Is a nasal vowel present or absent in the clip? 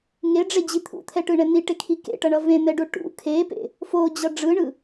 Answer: present